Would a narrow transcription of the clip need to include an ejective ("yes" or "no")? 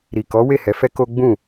no